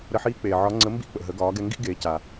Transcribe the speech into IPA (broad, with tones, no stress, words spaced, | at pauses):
ɾə˧ħiː˧˥k͡peː˩ ʕɒ˧˥ŋ͡ǀə˧˥ mbḭ˥ k͡pə̰˩ ɦə˩˧ɡɒː˩˧ɡɛ˧ŋɡḭ˥ ɡeː˩˧ca˩